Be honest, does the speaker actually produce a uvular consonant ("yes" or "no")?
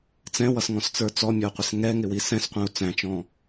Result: yes